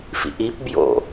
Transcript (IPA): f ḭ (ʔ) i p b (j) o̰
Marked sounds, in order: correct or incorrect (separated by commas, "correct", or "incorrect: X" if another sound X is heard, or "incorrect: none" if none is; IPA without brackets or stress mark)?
correct, correct